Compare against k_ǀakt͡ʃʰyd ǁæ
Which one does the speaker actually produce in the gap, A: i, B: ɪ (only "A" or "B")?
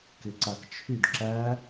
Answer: B